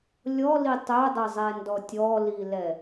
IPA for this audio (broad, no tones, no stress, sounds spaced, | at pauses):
lʲ ɔ l i tˤ œ dˤ ə zˤ ɛ n d ɔ tʲ ɔ l i l ɛ